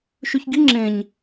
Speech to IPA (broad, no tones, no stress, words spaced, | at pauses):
ʃʉçɡi ŋ͡ǁẽɲ